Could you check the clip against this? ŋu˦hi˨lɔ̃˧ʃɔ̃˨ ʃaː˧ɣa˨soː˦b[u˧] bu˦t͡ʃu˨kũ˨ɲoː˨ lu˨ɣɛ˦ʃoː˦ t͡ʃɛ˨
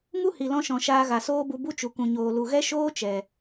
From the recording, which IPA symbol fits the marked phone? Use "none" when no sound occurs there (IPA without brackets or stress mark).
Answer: u˧